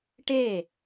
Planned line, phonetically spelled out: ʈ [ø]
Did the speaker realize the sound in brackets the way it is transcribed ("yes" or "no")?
no